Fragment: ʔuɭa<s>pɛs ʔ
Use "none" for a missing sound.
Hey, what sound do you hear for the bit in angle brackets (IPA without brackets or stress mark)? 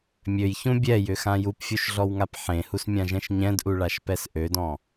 ʃ